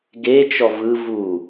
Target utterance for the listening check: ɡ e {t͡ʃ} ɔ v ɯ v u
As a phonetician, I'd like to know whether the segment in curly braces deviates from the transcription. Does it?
no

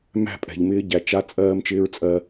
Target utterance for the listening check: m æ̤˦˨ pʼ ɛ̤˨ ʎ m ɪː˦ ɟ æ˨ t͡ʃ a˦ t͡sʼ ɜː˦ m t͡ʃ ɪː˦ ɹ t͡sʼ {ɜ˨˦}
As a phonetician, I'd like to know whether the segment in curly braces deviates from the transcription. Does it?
yes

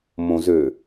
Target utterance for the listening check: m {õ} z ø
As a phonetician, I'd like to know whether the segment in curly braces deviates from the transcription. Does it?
no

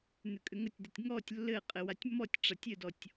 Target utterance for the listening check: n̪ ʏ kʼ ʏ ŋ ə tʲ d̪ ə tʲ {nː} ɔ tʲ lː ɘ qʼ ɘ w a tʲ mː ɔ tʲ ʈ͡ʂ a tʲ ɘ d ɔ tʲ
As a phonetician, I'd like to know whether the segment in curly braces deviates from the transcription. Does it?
yes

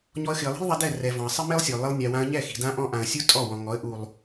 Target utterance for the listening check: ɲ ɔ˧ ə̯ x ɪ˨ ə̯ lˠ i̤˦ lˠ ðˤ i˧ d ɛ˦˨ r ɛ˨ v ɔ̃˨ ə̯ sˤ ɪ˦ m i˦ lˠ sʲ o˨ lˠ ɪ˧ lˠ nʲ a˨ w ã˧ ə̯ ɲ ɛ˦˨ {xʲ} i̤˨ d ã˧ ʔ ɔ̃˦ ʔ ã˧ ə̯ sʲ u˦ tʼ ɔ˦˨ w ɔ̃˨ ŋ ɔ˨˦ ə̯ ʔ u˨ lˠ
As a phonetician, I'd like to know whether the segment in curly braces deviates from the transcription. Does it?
yes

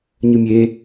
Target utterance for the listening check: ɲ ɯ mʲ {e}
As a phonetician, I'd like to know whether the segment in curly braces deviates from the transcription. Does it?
no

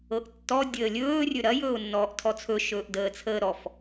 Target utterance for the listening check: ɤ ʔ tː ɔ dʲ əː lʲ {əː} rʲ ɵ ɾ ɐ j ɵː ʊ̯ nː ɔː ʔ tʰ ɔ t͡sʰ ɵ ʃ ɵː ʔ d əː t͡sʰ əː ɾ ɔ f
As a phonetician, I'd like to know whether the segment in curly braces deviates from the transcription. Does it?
yes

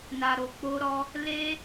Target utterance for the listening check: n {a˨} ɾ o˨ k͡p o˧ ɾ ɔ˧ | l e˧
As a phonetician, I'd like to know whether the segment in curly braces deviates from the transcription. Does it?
no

